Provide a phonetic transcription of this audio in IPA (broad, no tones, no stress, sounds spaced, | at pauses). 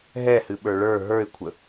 ɦ ɛ h ɨ ɓ ə˞ ɭ ə˞ ɦ ə˞ ɪ̯ kʷʰ ə